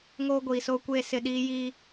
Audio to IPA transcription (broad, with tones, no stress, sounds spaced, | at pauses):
ŋ oː˦ ɡʷ iː˨ s oː˦ kʷ eː˦ s ɪ˨ ɗ iː˦ j i˦